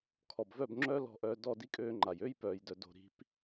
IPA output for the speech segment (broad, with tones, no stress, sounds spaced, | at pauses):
kʰ ɔ˨ b v œ˦˨ b ŋ͡ǁ œː˦ l ɔ̤˦˨ ʔ œː˧ d ɔ˦˨ d i˦ kʼ øː˧ ŋ͡ǃ a˨ j ø˦ j p œː˨ j d œ˨ d o̤˨ ɾ i̤˨˦ p